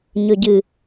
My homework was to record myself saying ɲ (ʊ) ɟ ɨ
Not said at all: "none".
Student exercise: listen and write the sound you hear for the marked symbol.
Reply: ɵ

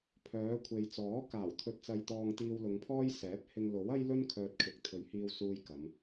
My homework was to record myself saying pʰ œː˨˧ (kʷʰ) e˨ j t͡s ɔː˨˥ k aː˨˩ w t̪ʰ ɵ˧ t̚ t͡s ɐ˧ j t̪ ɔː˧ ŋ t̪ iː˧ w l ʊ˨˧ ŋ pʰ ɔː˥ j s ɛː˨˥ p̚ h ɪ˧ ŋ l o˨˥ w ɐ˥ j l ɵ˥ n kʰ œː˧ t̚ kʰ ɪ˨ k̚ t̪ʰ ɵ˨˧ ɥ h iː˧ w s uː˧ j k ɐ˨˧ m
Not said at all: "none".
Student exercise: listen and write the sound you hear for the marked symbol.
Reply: kʷʰ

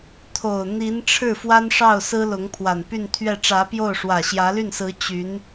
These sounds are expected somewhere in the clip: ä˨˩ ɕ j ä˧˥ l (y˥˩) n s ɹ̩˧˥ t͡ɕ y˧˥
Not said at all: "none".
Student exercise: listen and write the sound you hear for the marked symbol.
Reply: y˥˩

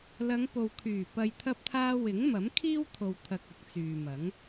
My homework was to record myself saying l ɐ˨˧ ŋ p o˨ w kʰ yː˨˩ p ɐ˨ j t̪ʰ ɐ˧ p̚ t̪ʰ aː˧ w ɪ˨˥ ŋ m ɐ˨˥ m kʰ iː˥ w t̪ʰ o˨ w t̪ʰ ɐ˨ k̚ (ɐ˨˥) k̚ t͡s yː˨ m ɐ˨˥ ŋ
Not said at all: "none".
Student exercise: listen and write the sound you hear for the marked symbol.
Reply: ɐ˨˥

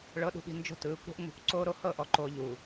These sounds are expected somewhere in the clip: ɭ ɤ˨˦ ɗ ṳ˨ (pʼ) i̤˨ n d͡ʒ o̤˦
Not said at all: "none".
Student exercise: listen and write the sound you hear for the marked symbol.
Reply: ɓ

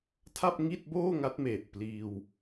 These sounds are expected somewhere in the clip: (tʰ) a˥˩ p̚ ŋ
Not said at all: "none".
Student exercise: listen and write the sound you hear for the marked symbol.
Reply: tʰ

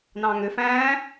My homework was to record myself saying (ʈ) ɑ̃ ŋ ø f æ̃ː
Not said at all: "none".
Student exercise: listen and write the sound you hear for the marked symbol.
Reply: n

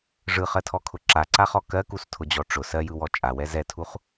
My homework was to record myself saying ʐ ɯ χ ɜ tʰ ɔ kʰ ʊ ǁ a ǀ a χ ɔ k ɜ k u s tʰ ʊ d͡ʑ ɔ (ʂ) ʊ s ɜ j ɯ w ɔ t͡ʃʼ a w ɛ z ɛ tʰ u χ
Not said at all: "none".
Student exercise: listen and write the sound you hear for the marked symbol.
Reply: ʈ͡ʂ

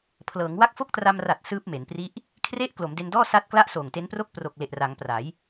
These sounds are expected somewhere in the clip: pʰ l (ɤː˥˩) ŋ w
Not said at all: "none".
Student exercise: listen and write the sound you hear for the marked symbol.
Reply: ɤː˩˦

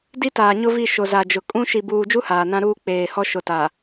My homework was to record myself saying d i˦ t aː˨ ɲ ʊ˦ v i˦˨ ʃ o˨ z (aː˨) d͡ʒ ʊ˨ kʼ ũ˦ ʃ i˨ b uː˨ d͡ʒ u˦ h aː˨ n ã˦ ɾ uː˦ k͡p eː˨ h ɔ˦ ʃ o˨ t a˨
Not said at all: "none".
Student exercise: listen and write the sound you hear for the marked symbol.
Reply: a˨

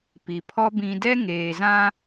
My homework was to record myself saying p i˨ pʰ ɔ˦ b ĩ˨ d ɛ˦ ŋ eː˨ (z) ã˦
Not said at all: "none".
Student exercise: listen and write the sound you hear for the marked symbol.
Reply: z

